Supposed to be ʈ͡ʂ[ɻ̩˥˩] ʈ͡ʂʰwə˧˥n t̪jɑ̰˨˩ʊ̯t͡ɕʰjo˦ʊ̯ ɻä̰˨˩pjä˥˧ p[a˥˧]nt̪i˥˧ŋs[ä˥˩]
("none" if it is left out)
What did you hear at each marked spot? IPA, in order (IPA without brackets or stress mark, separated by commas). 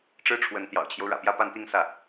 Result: ɻ̩˥, a˥˧, ä˥˩